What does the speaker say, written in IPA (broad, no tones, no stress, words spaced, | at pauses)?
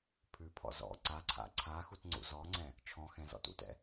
pʰʉpʰɔ̰ zɔ̰ ǀa ǀʰa̰ǀʰaxut ŋ͡ǀṵzɔŋ͡ǀɛ̃ | t͡ʃʰɔ̃ xɛ̃zɔ̰tṵtɛ̰